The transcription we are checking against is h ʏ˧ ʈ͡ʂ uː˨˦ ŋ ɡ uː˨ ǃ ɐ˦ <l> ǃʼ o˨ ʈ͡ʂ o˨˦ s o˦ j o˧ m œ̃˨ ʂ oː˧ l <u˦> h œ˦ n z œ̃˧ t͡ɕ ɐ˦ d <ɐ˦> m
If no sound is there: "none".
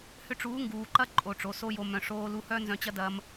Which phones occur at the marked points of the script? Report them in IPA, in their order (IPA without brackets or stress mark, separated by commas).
none, u˧, ɐ˦